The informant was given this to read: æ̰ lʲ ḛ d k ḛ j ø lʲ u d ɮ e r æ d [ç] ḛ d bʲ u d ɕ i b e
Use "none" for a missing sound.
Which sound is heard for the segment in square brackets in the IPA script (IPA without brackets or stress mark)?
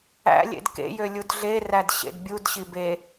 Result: ɕ